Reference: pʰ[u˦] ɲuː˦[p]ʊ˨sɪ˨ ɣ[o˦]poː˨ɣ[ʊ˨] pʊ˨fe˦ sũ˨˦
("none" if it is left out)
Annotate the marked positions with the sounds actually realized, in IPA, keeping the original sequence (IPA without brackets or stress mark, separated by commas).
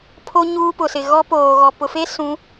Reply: o˦, p, ɔ˦, ɔ˨